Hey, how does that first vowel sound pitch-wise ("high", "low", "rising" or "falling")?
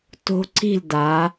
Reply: high